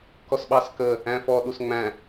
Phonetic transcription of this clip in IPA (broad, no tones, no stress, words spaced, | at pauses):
kɔsɓɑskə | æ̃fɔɗus ŋ͡mæ̃